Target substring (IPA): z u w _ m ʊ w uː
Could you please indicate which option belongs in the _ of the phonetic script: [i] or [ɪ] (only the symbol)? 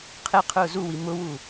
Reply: i